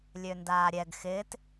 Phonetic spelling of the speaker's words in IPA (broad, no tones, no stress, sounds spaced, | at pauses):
lʲ ø n d aː ɾʲ ɛ ɡ x ɪː t